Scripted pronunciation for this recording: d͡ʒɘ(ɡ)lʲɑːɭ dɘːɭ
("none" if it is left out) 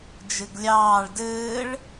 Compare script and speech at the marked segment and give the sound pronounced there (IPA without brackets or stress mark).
ɡ